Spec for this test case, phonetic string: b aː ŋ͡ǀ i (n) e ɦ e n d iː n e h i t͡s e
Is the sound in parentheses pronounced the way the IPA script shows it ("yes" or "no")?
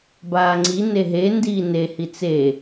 yes